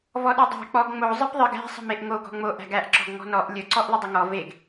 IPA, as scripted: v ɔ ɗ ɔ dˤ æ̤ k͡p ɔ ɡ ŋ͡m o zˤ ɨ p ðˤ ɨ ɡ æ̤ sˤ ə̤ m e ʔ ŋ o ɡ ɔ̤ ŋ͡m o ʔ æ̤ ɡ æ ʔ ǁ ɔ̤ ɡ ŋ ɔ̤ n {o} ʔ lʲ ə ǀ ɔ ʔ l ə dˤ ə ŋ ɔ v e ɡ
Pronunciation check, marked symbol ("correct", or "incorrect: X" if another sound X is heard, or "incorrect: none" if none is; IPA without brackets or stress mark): incorrect: ɔ